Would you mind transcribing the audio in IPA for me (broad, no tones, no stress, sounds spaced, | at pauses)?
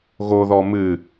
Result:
ɣ o ð ɔ m ɨ